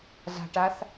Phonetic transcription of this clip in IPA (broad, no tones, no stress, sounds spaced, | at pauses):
z a̤ ʈ a θ